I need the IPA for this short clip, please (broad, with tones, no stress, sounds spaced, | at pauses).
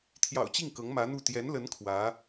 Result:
t̪ʰ j ɑ̰˨˩ ʊ̯ t͡ɕ i˥˩ ŋ k ɤ˧˥ ŋ m ä˧˥ n̪ u˥˩ t̪ j ɛ˧˥ n l ə˧˥ n kʰ w ä˧˥